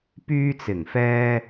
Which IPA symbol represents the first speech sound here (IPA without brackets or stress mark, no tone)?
p